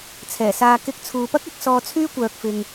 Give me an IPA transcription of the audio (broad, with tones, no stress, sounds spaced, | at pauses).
t͡sʰ ɛː˨˩ s aː˧ k ɪ˧ k̚ t͡sʰ uː˨ p ɐ˥ k̚ ɐ˧ k̚ s ɔː˧ t͡sʰ yː˥ kʷ œː˨ k̚ f ɪ˨ ŋ